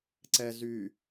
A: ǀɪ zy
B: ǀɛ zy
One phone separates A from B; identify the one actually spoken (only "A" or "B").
B